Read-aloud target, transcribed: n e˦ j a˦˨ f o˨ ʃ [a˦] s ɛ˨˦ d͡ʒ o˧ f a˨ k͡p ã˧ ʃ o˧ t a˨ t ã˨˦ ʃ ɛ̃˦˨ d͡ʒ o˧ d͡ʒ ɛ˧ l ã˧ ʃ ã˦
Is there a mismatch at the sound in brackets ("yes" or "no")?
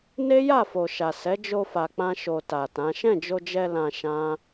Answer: yes